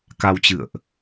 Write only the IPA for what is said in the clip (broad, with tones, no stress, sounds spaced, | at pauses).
k a˧ w t͡ɕ ɨ̰˧˨ ə̯ ʔ